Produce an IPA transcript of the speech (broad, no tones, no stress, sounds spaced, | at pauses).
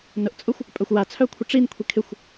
n ʊ ʔ t͡sʼ ʊ xʷ | pʼ œ xʷ w a t͡sʰ œ kʷʰ ɪ ʈ͡ʂ i n kʷʰ i kʰ ɪ xʷ